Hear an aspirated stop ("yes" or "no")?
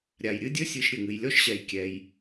no